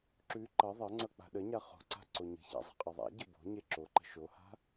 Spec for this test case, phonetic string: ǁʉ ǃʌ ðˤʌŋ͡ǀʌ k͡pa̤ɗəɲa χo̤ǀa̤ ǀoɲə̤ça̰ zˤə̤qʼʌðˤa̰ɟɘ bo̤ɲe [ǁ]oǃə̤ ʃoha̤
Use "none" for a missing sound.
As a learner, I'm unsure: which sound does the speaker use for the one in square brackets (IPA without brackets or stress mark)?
ǁ